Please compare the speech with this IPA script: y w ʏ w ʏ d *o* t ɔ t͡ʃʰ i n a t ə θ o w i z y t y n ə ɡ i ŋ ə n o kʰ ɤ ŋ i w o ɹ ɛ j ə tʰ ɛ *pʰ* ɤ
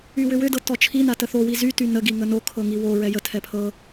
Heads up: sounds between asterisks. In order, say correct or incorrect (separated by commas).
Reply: incorrect, correct